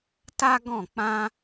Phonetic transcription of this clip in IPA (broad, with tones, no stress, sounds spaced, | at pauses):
t a˦ ɡ ɔ̃˦˨ k͡p ã˦